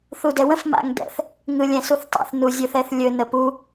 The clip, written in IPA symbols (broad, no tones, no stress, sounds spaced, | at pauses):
θ u d ɛ w ə̃ f m a̰ ŋ d ɛ̰ θ | ŋ ɯ lʲ ɛ̃ s u θ tˤ a̰ θ n u zʲ ɵ θ ɛ θ lʲ ɵ n ə p u